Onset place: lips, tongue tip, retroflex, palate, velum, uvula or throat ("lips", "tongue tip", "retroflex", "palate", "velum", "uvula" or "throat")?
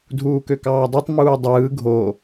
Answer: tongue tip